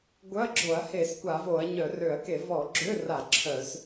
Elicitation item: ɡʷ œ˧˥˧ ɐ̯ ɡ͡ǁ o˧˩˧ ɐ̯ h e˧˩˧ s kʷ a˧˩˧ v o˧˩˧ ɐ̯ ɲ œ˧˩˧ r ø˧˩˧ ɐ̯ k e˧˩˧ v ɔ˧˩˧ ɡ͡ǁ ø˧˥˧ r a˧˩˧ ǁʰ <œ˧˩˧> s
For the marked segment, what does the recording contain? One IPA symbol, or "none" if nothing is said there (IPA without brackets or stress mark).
œ˧˩˧